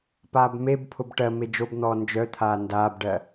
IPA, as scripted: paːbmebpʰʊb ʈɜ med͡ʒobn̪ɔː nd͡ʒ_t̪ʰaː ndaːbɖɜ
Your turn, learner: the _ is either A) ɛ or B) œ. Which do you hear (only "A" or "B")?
B